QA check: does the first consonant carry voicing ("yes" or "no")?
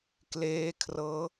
no